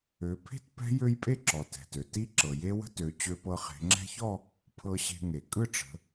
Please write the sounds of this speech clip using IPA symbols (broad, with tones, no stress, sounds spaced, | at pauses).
ø˩˧ pʰ e̤˥˧ t p ɛ̤˦˥ j ø˦˥ j pʼ e˥˧ ǁ ɔ˩ t ɛ̤˩ t ø˩ t i˦˥ ǁ ɤ˩ j e˦˥ w ə̤˦˥ t ø˩˧ t͡ɕ ø˦˥ p ɤ˦˥ χ e̤˩˧ ŋ͡ǁ ɛ̤˦˥ ç ɔ˥˧ | pʰ ɤ˧ ɕ e̤˧ ŋ e˩ kʼ ɯ˥˧ ʈ͡ʂ ə̤˩˧